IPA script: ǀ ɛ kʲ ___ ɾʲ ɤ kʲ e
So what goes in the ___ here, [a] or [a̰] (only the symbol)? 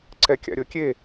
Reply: a̰